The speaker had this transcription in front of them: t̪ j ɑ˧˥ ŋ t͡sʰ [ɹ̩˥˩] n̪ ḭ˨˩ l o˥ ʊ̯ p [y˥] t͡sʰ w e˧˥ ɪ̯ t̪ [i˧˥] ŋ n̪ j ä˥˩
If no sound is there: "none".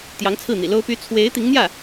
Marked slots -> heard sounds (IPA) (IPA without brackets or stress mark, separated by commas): ɹ̩˥˩, y˥, i˧˥